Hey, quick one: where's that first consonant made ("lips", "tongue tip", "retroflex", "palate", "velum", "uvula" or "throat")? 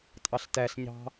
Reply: tongue tip